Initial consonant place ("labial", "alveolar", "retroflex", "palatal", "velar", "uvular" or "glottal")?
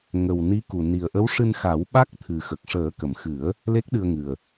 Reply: velar